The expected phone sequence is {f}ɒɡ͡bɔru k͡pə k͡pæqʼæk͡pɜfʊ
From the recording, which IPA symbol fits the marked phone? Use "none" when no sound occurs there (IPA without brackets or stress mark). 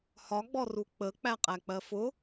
h